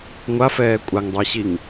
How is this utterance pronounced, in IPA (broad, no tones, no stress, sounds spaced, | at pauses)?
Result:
ŋʷ a f ɛː kʷʼ a ŋ dˤ ʊ i̯ ɕ i ŋ